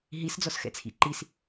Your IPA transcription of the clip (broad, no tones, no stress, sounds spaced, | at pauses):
ɦ i s d͡z ɔ s x ɛ̰ t͡sʰ ḭ ǃ i s